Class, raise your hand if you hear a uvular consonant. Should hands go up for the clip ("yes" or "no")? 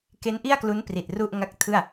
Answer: no